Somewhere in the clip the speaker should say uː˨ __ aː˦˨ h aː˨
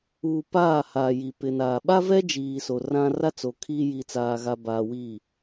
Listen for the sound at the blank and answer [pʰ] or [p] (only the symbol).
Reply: p